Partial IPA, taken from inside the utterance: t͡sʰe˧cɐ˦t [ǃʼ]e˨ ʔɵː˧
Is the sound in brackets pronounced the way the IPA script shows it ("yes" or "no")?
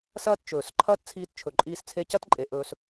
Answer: yes